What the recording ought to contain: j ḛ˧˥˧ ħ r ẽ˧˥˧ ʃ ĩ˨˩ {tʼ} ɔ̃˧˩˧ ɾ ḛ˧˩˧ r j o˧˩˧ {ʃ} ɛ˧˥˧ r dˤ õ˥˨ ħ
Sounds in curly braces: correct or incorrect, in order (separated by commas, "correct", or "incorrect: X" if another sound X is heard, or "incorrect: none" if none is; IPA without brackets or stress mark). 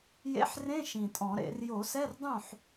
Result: correct, incorrect: s